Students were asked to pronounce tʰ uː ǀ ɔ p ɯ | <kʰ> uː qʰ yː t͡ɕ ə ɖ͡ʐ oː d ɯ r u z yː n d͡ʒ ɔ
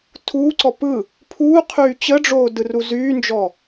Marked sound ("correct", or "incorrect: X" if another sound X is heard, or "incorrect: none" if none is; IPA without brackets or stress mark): incorrect: pʰ